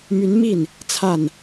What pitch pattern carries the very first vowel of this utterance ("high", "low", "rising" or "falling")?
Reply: rising